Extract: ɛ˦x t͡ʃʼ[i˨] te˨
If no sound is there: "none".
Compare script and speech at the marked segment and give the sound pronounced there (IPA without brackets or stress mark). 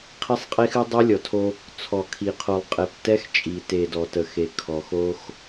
i˨